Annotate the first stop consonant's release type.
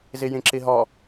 click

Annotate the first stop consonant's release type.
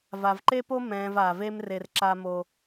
click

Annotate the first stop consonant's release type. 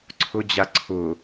click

